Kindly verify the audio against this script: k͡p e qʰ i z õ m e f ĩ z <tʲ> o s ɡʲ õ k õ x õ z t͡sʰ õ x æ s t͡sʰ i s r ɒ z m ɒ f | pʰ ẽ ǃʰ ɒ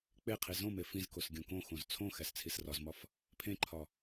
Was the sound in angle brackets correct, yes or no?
no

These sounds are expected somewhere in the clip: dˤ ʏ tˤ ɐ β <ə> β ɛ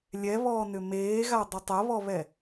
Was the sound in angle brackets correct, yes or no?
no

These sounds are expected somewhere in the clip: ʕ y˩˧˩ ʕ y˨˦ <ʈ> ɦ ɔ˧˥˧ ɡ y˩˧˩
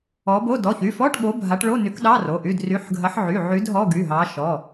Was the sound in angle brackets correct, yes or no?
no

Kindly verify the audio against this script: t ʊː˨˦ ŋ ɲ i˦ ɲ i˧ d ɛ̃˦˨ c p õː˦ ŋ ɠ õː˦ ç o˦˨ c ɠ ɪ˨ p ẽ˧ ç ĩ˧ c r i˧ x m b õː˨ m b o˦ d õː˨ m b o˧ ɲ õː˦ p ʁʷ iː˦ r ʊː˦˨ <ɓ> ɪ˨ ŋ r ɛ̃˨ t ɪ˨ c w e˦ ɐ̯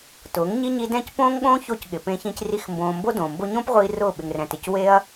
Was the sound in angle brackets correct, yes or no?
yes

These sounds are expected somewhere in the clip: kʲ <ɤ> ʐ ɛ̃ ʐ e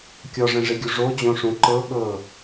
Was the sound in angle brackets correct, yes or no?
no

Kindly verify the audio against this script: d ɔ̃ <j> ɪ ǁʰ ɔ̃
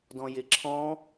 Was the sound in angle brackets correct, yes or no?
yes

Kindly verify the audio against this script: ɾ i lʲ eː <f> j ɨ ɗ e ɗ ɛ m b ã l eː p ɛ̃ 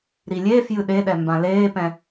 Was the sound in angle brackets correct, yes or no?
yes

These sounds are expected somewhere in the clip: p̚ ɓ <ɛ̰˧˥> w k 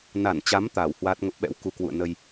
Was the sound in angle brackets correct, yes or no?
yes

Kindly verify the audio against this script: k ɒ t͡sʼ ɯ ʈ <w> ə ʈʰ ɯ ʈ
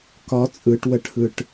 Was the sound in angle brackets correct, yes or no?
yes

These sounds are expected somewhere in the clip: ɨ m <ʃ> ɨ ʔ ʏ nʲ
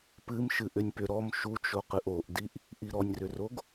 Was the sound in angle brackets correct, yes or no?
yes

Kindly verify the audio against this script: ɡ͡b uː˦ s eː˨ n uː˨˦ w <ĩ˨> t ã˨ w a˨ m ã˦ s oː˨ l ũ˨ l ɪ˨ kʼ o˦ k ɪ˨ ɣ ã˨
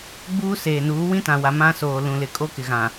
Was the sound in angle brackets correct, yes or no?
no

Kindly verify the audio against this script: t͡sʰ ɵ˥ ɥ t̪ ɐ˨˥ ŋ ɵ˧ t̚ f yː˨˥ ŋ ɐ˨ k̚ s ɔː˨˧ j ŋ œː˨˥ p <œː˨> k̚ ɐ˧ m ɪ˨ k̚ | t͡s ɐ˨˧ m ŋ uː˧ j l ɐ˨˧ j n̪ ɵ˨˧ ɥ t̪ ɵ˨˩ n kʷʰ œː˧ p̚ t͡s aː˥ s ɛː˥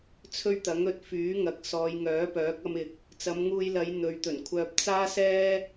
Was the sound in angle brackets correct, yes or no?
no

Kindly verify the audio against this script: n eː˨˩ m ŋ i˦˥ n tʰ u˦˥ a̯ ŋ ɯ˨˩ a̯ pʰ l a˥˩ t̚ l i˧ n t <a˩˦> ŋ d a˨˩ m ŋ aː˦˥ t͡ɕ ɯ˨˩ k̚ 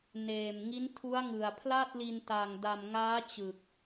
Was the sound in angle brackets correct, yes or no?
no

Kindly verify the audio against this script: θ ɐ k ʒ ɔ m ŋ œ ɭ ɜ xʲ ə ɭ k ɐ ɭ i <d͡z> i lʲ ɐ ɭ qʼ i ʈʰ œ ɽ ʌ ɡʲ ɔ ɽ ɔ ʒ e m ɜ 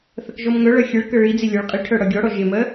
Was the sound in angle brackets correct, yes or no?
yes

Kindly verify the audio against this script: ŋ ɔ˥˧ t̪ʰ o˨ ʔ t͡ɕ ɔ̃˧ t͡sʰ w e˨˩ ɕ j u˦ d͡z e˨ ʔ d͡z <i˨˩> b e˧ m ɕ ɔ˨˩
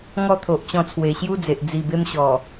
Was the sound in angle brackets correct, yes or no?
yes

